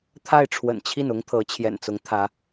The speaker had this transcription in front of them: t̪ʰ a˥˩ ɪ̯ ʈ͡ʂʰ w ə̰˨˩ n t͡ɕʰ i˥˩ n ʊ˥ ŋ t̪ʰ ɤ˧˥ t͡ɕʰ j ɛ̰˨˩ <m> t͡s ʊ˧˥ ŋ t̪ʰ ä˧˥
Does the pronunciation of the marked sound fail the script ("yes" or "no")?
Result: yes